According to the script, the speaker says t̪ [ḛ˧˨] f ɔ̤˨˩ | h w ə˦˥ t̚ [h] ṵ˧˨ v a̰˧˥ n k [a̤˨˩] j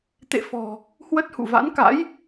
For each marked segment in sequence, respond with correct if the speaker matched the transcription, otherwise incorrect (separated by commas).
correct, correct, incorrect